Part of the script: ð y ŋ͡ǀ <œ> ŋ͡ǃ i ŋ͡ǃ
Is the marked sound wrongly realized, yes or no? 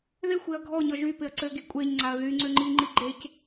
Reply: yes